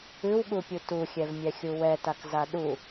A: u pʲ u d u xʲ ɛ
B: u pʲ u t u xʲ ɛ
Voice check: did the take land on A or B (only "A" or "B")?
B